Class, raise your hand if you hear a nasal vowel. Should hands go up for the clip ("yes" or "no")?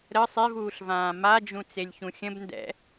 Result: yes